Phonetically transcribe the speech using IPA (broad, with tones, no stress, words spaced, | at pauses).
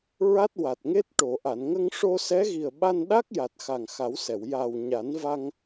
ɹa˦˥t̚wa˨˩t̚ŋe˦˥t̚ ʈo˨˩˨ ʔa˨˩˨nŋə˧ŋ ʂo˧sɛ˧˥ɣi˨˩ə̯ ɓa˧nɗa˦˥k̚ja˨˩t̚ xa˨˩ŋxa˨˩˦wsɛ˨˩˨w ja˨˩w ɲa˨˩˦nva˧ŋ